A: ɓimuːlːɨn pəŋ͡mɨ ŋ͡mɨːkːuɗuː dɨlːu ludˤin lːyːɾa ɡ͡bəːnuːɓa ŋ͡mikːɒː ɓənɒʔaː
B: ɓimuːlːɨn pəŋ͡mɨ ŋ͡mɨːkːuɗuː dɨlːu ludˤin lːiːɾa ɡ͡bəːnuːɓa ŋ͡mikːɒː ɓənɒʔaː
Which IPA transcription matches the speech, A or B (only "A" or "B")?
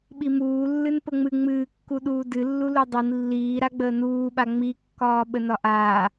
B